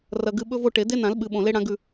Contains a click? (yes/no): no